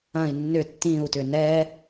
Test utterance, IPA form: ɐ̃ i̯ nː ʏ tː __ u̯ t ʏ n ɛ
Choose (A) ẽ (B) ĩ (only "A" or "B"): B